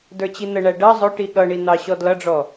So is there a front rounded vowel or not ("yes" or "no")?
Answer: no